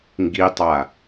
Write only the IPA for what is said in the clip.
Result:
ŋ ɡ i tˤ a

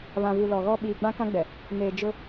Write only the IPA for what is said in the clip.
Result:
β ã˨ v u˨ l ɔ˨ ɣ ɔ˦ ɓ iː˨ ɡ͡b ã˦ k ã˦ ɡ͡b ɛ˨ | n eː˨ d͡ʒ ʊ˦

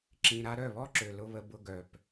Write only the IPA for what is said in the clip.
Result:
ǁ ĩ˧ ɾ a˦ ɾ œ˦˨ β ɔ˦ ǁ ø˨ l ʊ˦ β ə˧ b ʊ˧ ɡ œ˨ p

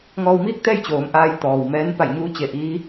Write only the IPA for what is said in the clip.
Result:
ŋ ɔː˧ w m iː˥˨ k̚ t̪ ɛː˥˨ j t͡ɕ oː˩˧ m ʔ aː˧ j t̪ ɔː˩ w m ɛː˧˥ n p a˧˩ j ɲ uː˧˥ t͡ɕ e˧˩ ʔ iː˧˥

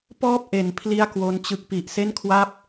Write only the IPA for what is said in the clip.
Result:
p ɔː˥˩ p̚ ʔ e˩˦ n pʰ l i˥˩ a̯ k w o˦˥ n t͡ɕ ɯ˦˥ k̚ p i˨˩ ʔ s e˥˩ n kʰ w a˦˥ p̚

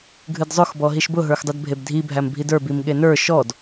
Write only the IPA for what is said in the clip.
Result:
ɡʱ ɨ d zˤ ʊ x b ɔ ɦ i ʃ b ʊ ɦ ə˞ x dˤ ɨ d bʱ e b dʱ i bʱ æ m bʱ i d ə˞ b i m ɠ e n ə˞ ʃ ɔ d

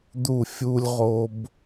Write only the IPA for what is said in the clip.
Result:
d̪ u˧˩ fʲ u˧ lʲ ʁ o˧ b

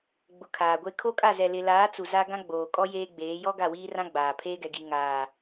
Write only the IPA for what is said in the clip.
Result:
ɡ͡b ʊ˨ kʰ aː˨ ɡʷ e˦ kʰ o˦ kʼ a˦˨ z ɛ˨ l ɪ˨ l aː˨˦ t͡s u˨ z a˦ ɡ ã˦ ɡ͡b oː˨ kʼ ɔ˦ j eː˦ ɡ͡b eː˨˦ j ɔ˦ ɡ a˦˨ w iː˦ r ã˦ ɡ͡b aː˨ pʰ eː˦ ɡ ɛ˨ ɡ i˨ ŋ aː˨

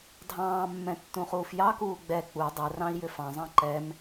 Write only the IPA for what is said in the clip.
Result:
dʱ ɑ̃ː mː ɛ̃ tː ũ χ uː f j ɑ k uː ɡ͡b ɛ k͡p u dˤ ɛ r ɑ̃ i̯ j ʏ f ɑ̃ zˤ ɑ̃ ǃ ɛ m

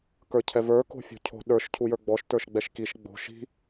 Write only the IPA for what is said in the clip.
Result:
k ə˞ cʰ ɛ v ə˞ k o̤ fʲ o̤ cʰ o̤ ɗ ə˞ ʃ cʰ u j ə˞ ɡ͡b ɔ ʃ t ə˞ ʃ ɡ͡b ɛ ʃ k i ʃ ɡ͡b o̤ ʃ i̤

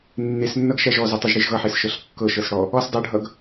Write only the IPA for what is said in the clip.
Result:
nː e s nː ʌ ɡ ʃ æ ʒ ɔ z ʌ tˤ ʌ ʒ ɽ e ʒ ɣ ʌ ħ e s ʃ ɤ ɬ kː ɤ ʃ ɤ s ɽ ɔ | ɔ s dˤ ɤ ɖʱ ʌ ɡ

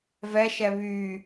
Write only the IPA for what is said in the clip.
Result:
v ɛ ʃ ɛ β y

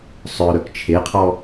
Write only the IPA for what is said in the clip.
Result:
sˤ œ ɾ œ k t͡ʃʰ e qʰ ɔ

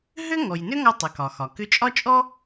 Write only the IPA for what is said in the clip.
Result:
ɦ ʏ˥ ŋ ɔ˩ j n ʏ˥ ŋ ɔ˧ tˤ ʏ˩˧ k ɒ˩ x ɒ˩ k ʏ˧˥ t͡ʃʼ ɒ˥ t͡ʃʼ ɔ˥

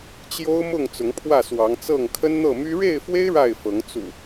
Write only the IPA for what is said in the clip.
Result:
t͡ɕ j o˦ ʊ̯ m ʊ˥˨ ŋ t͡s ʊ˨˦ ŋ pʰ w ä˥˨ s w ɑ˨˦ ŋ t͡s ɤ˥˨ ŋ kʰ ə˦ n n̪ ɤ˥˨ m y˦ ɻ e˥˨ ɪ̯ f w e˦ ɪ̯ ɻ a˥˨ ɪ̯ f ɤ˨˦ ŋ t͡s ṵ˨˩

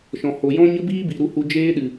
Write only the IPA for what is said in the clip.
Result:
ʃ ɔ̃˨ h o˨ j ɔ̃˦ ɲ ə˦ b iː˦ b i˨ ɾ u˧ h u˧ d͡ʒ eː˦ ɗ ɨ˨

